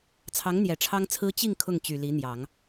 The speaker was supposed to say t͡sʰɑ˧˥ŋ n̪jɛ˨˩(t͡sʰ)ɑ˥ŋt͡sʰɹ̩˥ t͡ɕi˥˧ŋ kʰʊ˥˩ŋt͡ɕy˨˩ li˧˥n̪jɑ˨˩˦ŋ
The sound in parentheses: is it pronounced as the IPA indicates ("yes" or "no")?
no